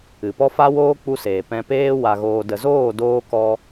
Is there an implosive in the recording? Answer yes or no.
no